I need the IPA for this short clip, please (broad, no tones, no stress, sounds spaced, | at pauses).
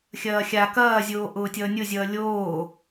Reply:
xʲ ɐː xʲ a k ɐː zʲ oː ʔ ʊː tʲ ʌː nʲ ʊ zʲ ʌː lʲ oː